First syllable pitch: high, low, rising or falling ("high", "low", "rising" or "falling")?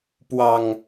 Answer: low